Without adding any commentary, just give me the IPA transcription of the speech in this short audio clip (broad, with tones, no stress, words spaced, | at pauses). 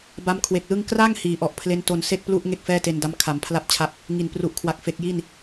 ba˦˥mkʰwe˨˩k̚lɯ˥˩ŋ kra˥˩ŋ hiː˩˦ʔɔ˨˩ʔpʰle˦˥nto˧n se˥˩k̚plu˥˩ʔ ŋe˥˩k̚fɛː˥˩te˧nda˦˥m kʰa˩˦mpʰla˥˩p̚t͡ɕʰa˥˩p̚ | ŋi˨˩npru˨˩ʔkʰwa˨˩k̚ fe˨˩k̚ji˥˩n